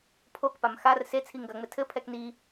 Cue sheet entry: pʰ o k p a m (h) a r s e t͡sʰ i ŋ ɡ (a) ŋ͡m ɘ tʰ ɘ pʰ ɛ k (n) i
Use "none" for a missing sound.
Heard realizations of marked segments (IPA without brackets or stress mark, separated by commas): x, ɐ, n